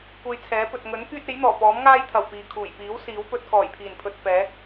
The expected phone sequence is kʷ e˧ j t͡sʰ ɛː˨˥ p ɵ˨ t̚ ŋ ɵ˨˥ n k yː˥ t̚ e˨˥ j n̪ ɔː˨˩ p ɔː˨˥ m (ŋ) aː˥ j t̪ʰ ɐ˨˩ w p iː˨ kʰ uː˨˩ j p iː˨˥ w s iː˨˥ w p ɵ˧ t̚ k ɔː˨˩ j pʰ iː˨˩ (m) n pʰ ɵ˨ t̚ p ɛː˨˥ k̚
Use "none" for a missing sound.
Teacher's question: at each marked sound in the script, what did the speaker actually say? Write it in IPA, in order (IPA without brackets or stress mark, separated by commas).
ŋ, none